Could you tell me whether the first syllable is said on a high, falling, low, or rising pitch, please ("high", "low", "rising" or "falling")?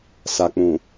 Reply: low